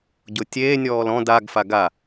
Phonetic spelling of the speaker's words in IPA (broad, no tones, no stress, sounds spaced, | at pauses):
ɟ ʊ tʲ eː nʲ ɔː l ɔ̃ d a ɡ f a ɡ a